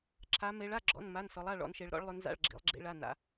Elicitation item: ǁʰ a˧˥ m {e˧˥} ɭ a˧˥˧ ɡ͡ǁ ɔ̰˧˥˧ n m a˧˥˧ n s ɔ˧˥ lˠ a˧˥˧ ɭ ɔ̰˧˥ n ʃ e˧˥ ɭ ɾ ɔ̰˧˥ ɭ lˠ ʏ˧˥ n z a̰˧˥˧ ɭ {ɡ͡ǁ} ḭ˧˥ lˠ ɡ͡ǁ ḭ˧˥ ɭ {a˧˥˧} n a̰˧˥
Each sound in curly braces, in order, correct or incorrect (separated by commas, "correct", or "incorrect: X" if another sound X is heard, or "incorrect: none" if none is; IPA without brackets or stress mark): correct, correct, correct